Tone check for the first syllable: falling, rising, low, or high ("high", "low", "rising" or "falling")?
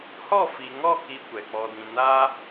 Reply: falling